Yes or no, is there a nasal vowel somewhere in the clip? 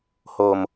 no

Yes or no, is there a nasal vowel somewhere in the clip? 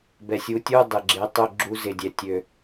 no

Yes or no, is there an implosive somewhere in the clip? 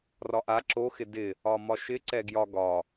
no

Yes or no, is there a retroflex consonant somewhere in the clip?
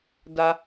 no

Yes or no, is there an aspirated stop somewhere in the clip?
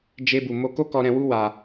no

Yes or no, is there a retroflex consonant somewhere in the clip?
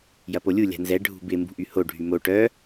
yes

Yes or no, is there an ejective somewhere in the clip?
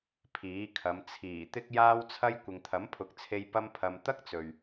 no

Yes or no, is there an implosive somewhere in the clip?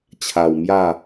no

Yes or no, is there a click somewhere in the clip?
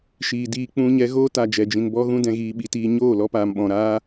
no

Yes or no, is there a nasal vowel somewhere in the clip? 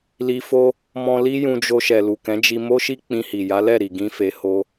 yes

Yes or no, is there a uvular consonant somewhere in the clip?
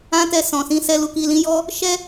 no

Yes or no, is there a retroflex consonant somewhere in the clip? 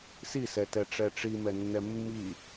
yes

